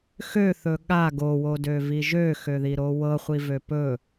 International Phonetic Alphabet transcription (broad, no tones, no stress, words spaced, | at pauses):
xøθɵ ɠa ɡowodøvi ʒøxøðiɾo wɤχʷivø pɵ